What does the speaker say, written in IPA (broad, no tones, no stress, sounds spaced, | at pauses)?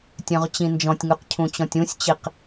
tʲ œ̃ ʁ t͡ɕ ĩ n d͡ʒ ɔ̃ tʲ ŋ ʉ q cʰ ũ t͡ɕ ɔ̃ tʲ ũ sʲ t͡ɕ i q